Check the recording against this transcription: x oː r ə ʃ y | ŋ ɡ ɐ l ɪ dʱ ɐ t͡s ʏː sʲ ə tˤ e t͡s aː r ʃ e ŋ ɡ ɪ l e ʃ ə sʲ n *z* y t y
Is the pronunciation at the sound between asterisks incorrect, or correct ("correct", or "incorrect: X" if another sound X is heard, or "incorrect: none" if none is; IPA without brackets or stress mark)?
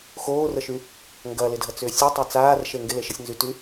correct